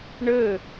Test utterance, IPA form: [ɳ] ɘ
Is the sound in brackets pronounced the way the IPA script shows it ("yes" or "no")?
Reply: yes